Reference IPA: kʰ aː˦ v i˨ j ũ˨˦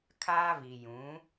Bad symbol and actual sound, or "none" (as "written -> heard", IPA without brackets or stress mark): none